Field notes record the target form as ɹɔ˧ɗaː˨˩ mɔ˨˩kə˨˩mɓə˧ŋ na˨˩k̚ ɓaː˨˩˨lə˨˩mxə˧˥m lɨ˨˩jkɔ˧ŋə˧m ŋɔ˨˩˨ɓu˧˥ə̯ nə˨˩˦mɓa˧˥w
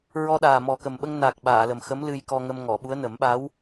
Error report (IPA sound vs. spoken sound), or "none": ɨ˨˩ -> ɨ˧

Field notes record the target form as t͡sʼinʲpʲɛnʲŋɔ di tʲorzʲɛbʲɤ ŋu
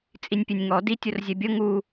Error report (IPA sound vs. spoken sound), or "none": none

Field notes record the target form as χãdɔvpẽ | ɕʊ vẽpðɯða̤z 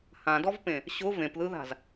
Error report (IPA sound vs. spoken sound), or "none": χ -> h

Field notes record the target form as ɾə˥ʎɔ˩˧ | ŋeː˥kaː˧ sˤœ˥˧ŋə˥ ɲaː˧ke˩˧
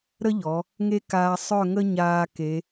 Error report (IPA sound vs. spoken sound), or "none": eː˥ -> e˥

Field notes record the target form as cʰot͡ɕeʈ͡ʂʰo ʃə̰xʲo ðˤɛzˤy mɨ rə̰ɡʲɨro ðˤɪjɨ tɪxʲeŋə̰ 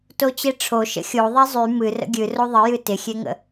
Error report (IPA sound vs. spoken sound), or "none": cʰ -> t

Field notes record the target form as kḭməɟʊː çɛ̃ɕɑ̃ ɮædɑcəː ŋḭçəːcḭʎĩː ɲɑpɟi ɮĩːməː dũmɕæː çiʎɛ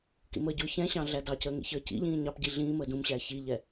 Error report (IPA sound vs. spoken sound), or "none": none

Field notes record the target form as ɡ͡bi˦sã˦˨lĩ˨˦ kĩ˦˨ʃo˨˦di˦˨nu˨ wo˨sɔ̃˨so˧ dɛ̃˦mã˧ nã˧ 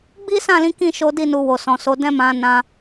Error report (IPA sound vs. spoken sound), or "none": none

